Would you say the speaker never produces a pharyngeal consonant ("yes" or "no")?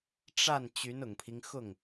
yes